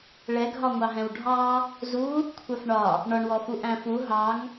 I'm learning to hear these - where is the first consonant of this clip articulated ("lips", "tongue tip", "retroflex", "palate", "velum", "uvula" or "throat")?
retroflex